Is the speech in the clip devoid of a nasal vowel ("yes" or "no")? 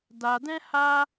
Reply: no